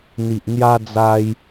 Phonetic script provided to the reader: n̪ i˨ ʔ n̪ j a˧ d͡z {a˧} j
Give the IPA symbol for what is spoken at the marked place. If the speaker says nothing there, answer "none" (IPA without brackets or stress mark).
a˧